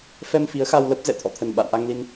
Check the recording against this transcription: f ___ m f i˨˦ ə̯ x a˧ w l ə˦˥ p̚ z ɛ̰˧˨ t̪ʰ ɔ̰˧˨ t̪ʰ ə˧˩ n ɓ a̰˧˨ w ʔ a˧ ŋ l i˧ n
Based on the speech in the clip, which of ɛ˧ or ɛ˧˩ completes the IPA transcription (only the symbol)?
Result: ɛ˧